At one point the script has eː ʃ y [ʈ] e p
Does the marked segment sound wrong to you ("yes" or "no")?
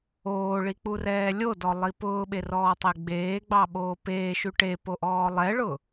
no